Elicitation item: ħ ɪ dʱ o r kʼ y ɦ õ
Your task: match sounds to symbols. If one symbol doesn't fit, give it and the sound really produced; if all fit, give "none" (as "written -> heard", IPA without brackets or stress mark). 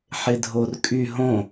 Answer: none